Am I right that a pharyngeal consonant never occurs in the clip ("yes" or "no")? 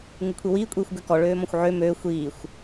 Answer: no